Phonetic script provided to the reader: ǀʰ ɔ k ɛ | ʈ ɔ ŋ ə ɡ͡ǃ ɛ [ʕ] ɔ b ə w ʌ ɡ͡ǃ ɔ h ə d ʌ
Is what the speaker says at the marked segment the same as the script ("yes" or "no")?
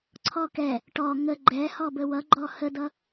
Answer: no